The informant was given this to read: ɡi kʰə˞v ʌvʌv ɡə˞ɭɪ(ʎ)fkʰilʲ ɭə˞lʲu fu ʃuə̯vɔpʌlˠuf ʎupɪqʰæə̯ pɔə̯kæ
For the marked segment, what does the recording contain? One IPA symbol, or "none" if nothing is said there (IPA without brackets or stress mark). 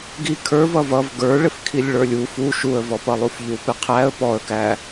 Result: none